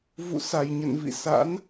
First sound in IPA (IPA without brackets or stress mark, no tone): v